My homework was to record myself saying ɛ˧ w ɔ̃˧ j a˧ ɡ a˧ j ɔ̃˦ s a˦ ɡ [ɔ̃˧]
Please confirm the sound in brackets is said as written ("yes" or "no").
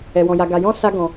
yes